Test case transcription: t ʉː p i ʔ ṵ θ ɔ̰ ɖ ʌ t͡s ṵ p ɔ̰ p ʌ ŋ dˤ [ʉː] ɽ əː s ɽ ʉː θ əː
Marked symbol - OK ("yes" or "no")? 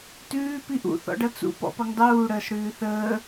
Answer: no